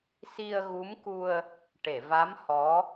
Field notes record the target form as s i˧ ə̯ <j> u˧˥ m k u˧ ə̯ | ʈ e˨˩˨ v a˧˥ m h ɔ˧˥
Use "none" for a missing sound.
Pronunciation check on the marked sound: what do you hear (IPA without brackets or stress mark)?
ɣ